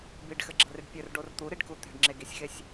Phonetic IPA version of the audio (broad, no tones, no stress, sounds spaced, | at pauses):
b i ɖ x ɘ ɡ͡ǁ ɐ r i ɖ pʲ ɘ r ɖ o r t̪ u ɾ i ɖ k u t̪ e̤ ɖ ŋ͡ǁ e ɡ i sʲ x e sʲ